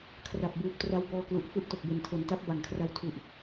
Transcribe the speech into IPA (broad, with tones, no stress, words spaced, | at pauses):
kʰra˨˩p̚buː˨˩p̚tra˧wbɔː˧ klu˨˩ʔfu˥˩ʔto˨˩k̚be˨˩n tʰo˩˦nta˦˥p̚ ba˨˩ŋkʰra˧w tʰu˨˩ʔ